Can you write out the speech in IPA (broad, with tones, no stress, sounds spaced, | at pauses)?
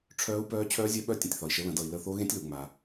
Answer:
ʈ͡ʂʰ œː˦˥ u̯ p œː˦˥ t͡ɕʰ œː˦˥ zʲ œ˦˥ ɓ œ˦˥ tʲ ə̃˨ tʲ θ ɒ˨ i̯ ʃ ə˨˦ l ə̃˨˩˦ d ʌ˨ i̯ l ə˦˨ θ o˦˥ ɣ ẽ˦˥ tʲ l u˨ ŋ͡m a˨